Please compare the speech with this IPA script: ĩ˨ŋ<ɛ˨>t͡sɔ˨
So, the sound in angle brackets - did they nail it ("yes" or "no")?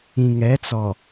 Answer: no